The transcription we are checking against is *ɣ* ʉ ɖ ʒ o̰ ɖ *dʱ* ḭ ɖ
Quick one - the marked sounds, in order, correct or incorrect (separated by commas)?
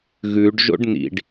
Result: correct, incorrect